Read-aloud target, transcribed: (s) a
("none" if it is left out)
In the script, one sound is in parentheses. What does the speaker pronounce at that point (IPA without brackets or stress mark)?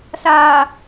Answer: s